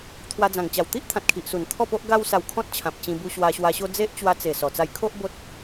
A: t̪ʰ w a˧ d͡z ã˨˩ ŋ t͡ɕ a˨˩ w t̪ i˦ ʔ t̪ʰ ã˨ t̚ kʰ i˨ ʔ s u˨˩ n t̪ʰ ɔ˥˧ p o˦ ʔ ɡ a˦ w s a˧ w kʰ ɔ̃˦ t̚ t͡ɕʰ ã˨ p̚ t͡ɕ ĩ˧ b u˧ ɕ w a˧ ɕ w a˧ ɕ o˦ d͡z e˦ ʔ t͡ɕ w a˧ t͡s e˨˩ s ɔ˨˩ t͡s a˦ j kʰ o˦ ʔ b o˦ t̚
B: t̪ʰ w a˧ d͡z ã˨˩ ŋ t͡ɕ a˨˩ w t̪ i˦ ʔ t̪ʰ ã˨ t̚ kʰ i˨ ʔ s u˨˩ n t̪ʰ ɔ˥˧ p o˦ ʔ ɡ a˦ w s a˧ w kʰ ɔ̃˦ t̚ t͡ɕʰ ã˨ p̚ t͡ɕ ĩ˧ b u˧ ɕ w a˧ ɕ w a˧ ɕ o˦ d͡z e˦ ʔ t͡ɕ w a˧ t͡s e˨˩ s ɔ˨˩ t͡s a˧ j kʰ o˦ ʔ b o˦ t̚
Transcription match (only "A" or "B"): A